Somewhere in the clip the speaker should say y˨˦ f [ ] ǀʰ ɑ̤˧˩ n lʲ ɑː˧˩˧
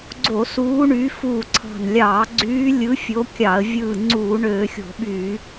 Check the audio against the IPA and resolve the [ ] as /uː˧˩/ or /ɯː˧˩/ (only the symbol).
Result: uː˧˩